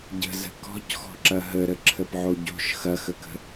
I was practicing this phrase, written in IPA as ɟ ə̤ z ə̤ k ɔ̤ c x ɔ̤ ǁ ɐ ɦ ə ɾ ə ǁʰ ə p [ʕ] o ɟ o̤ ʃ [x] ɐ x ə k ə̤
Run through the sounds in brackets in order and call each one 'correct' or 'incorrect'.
correct, correct

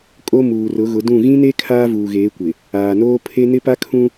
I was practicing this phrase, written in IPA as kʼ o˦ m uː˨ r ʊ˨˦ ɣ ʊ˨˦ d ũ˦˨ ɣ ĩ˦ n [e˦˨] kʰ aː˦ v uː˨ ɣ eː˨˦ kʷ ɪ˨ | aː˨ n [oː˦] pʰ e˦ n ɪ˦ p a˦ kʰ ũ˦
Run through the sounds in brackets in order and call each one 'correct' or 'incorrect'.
incorrect, correct

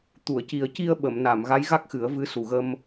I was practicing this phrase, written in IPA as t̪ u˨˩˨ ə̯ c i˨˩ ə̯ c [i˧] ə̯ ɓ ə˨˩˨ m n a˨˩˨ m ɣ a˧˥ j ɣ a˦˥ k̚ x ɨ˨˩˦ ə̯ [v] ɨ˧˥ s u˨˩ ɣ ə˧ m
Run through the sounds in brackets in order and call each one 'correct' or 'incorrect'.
correct, correct

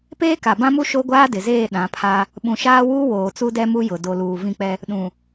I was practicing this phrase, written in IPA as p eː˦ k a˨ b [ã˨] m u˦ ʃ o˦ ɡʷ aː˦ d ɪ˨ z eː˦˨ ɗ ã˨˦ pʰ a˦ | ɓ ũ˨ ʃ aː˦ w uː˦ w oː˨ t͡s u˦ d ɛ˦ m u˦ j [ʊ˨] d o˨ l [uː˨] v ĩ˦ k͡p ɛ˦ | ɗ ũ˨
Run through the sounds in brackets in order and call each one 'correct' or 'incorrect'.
incorrect, correct, correct

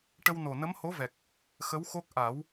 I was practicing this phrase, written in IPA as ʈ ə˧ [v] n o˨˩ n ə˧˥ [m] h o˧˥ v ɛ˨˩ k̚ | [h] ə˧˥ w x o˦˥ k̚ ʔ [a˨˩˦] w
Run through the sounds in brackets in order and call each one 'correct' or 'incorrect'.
incorrect, correct, incorrect, correct

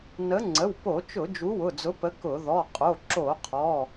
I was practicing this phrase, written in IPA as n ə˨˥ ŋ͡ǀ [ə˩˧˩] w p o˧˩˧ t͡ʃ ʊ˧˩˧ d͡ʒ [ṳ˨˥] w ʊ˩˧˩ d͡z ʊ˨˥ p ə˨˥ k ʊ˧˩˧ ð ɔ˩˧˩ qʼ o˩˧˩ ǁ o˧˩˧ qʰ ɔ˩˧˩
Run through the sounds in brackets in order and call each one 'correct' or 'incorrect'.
correct, incorrect

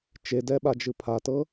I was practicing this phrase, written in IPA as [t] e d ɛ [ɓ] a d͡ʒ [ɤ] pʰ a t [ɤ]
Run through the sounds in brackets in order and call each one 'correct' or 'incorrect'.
incorrect, correct, incorrect, correct

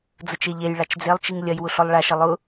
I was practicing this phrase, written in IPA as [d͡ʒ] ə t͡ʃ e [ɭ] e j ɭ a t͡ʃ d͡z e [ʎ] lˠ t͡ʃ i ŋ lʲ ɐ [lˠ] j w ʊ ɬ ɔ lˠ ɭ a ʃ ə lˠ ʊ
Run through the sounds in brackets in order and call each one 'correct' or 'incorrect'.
incorrect, incorrect, incorrect, incorrect

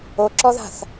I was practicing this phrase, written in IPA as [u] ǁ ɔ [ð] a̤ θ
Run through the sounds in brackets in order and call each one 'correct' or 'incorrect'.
incorrect, correct

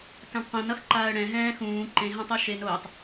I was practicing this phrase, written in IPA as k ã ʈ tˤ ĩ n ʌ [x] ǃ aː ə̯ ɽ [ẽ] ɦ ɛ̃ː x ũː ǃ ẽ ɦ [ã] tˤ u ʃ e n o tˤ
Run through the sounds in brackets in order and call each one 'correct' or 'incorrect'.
correct, incorrect, correct

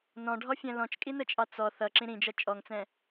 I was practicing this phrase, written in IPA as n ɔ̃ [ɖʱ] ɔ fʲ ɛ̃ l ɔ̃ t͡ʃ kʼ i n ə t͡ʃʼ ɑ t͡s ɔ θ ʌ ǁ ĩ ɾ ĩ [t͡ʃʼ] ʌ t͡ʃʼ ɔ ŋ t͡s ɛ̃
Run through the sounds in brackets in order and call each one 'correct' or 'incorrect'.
correct, incorrect

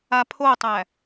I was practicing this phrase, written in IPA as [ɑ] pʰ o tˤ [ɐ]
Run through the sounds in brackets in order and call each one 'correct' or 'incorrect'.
incorrect, incorrect

